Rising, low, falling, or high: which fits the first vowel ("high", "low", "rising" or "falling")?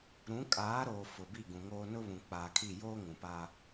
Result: rising